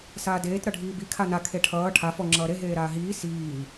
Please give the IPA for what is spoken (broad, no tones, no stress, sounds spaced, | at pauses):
s aː d eː t ɾ ʌ ɖʱ iː b i kʰ a n a kʰ e ʈʰ ʌː ʈʰ a f ɔ ŋ͡ǁ ʌː ɾ e ɦ eː ɾ aː ɦ iː s iː